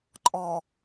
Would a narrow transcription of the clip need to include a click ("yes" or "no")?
yes